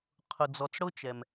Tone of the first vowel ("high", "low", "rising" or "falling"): low